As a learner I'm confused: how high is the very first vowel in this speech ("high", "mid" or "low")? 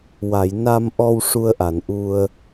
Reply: low